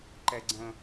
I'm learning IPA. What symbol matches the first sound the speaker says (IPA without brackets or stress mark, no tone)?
ǃ